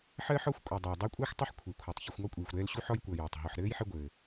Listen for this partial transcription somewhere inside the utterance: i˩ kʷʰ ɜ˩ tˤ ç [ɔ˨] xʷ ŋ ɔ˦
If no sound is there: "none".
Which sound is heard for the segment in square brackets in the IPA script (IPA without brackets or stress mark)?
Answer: ʌ˨